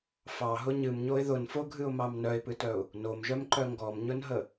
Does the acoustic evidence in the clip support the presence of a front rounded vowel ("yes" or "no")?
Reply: yes